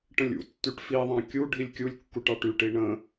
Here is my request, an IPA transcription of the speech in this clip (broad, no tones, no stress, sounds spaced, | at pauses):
ʈ ə̃ lʲ ṵ tː y ʈ f i ðˤ ɑ̃ kʲ u ɖʱ i lʲ kʲ u lʲ kː u ʈ ɑ ʈ y ʈ i ɳ ə̃